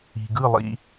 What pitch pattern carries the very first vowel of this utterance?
low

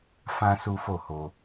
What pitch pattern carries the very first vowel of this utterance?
high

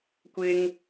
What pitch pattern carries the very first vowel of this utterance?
high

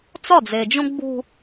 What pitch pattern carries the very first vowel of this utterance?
falling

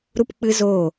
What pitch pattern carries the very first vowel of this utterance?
high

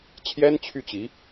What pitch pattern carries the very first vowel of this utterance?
high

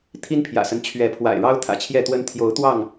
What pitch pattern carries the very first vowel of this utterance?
high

